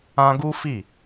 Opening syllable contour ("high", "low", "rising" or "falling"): high